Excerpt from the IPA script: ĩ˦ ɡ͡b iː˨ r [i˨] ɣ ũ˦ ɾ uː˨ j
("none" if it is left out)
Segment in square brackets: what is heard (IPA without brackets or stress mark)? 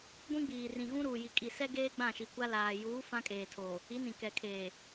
ĩ˨